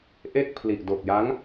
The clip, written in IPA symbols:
ʔ e˥˩ k̚ pʰ l i˨˩ ʔ d o˨˩ k̚ j a˦˥ ŋ

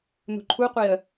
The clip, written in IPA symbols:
n ṳ ǃʰ u qʷ i ə̯

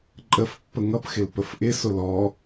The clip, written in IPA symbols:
ǃʼ ə f pː ə ŋ ʌ p x ɪ l p ə f ʔ ɪ s ʊ l ɔ

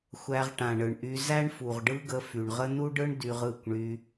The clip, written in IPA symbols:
xʷ æ˧ ʁ ʈ ã˨ ɳ ɯ˨ ɳ ʔ y˧ z æ˦ ɳ f u˨ ʁ ɖ ɯ˦ ɡ ə˧ f y˨ ɳ ʁ ə˦ n u˦ ɖ ɯ˦ ɳ d y˧ ʁ ɯ˦˨ kʷ ɳ y˧

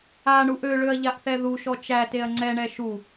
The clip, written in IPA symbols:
a ɳ u ʔ ø ɭ ø ɐ̯ ʎ a ʔ θ ɛ ð u ʃ ɔ t͡ʃ æ t e ɐ̯ ŋ͡ǀ ɛ ɳ ɛ ʃ u

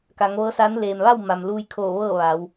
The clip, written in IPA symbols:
k a˩˧ ŋ ʋ ɤː˧˥ s a˧˥ n l eː˩ m ʋ a˥˨ w m a˩ m l uː˧ j kʰ oː˧˩ ʋ ɤː˥˨ ʋ a˩˧ w

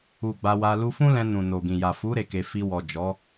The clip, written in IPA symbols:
u˨ ɡ͡b a˧ w a˧ l u˧ f ũ˦ l ɛ̃˧ n ũ˨ n o˨ ɡ ĩ˨ j a˨ f u˨˦ ɾ e˧ k e˧ f i˧ w ɔ˨ d͡ʒ ɔ˨˦

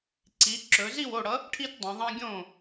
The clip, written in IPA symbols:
ǀ i˩˧ ǁ ɵ˩˧ z i˥˩ w o˥˩ ɽ ʌ˨˥ | ʈʰ i˦ t dˤ ɐ̃˩˧ ðˤ ɐ̃˦ ɡʲ õ˥˩

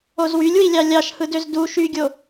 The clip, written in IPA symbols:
o z w y lʲ w i lʲ ɑ lʲ ɑ ʃ h ɯ d ø z d u ʃ y ɡʲ o

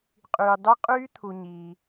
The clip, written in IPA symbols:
qʼ yː˨ dˤ u˦˥ qʼ yː˦˥ t̪ʰ u˨ ɲ iː˨

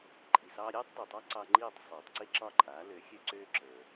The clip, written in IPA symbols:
ǃʼ i˩ s ɑː˧ ɾʲ ɛː˥ tˤ d ə˞˩ tˤ ɑ˥ ǀ ɑ˧ ŋ͡ǃ iː˥˩ tˤ sˤ øː˩ tˤ ǀ i˥ ǁ ɒ˥˩ ǃʼ aː˩˥ l ø˩˥ xʲ ø˥ ǀ øː˥ ǁ ə˞˩

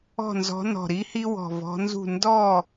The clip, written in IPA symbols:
ɔ̤˥˨ n z ɔ̤˧˥ n ɔ̤˧˩ ɾ i˥ h i˥ w ɔ̤˧˩ v ɔ̤˧˥ n z ṳ˥˨ n d ɔ˥˨

